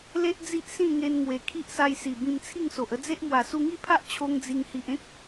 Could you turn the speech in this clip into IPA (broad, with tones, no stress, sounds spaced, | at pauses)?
l e˦ ʔ d͡z i˦ ʔ s ĩ˥˧ ŋ e˧ n ŋ w e˨˩ kʰ i˦ ʔ s a˧ j s i˨˩ b ĩ˧ m t͡sʰ i˥˧ ŋ s o˨ ʔ ə˥˧ d͡z e˦ ʔ m w a˨˩ s u˧ ŋ i˥˧ pʰ a˦ ʔ t͡ɕʰ o˦ ŋ d͡z i˧ ŋ h i˨ ʔ ẽ˦ k̚